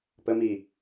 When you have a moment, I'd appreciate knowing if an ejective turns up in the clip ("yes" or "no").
no